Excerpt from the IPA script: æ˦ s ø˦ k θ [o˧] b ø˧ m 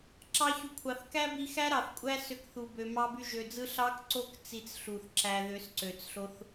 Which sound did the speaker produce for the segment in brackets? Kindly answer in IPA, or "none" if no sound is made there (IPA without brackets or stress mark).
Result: u˧